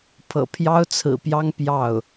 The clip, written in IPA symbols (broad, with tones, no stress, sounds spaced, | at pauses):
pʰ ɤ̰˨˩ pʰ j ɑ˥ ʊ̯ t͡sʰ ɹ̩˨˩ p j ɑ˥ ŋ p j ɑ˥˩ ʊ̯